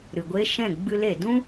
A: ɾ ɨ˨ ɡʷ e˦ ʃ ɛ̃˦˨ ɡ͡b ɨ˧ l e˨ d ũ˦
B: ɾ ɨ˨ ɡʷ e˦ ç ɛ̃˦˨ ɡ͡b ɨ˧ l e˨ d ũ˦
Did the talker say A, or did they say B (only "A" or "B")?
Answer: A